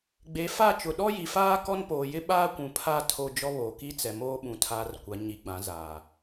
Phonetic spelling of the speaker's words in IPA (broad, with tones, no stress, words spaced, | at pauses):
ɡ͡be˨˦ fa˦˨ t͡ʃʊ˨ɗɔ˦ji˨faː˦ kɔ˦npoː˨jɪ˦ ɓaː˦kʷũ˨pʰa˦˨ tʰo˦d͡ʒɔ˦βo˨ ki˦t͡sɛ˨moː˦ɓũ˨ tʰaː˨r kʷa˨˦ ɲi˨ɡ͡bã˨˦ zaː˨